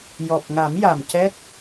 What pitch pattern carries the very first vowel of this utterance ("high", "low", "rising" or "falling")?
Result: low